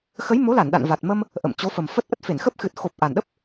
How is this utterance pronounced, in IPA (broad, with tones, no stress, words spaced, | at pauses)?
xə˨˦jmo˨˦la˧˩n ɗa̰˧˨nva˨˩t̚ mə˧m | ʔə̰˧˨mt͡ɕo˨˦fə˨˩mfə˦˥t̚ ʔə˦˥t̚fe˧˩nxə˦˥p̚ xɨ˨˩t̚xo˨˩p̚ ʔa˨˩nɗə˦˥p̚